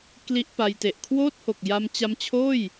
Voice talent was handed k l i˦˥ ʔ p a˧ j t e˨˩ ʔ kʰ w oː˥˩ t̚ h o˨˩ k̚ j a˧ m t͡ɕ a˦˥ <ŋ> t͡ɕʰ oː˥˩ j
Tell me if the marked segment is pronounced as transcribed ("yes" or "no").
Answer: no